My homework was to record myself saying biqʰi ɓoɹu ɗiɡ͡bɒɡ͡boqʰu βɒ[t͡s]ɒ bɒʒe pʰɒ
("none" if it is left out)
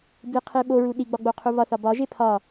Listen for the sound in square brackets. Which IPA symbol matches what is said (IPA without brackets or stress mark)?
θ